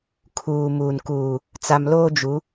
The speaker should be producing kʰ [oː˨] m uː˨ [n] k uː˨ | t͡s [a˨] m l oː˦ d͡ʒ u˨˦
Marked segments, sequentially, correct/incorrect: incorrect, correct, correct

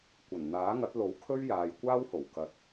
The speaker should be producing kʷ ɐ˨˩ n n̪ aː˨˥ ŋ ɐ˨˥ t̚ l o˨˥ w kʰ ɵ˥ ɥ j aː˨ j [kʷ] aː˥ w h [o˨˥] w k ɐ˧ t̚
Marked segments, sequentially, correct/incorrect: correct, incorrect

